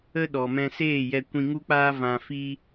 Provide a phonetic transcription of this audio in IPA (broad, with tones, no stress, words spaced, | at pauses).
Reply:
ə˦ɗɔ˨mɛ̃˧ seː˦˨jɛ˧ kʷĩ˧ŋu˦k͡paː˦ vã˧fi˦